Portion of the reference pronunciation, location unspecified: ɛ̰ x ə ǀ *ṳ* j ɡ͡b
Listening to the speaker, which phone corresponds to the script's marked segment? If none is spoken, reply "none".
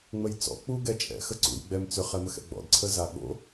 ṵ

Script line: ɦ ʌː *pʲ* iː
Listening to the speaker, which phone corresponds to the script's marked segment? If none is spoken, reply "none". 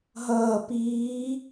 p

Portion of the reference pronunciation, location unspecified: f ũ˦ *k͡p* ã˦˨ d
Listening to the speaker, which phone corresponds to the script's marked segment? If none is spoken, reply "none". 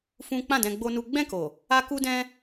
k͡p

